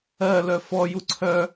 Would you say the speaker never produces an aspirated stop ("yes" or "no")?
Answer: no